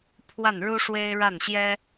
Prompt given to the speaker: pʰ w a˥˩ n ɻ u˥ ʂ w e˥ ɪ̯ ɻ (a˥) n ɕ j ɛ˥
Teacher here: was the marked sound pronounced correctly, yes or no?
no